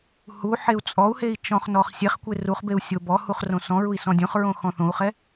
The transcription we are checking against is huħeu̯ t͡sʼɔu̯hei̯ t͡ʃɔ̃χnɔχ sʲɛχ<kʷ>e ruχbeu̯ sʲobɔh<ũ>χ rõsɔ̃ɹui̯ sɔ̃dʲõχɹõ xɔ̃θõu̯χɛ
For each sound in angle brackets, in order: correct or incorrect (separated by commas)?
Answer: correct, incorrect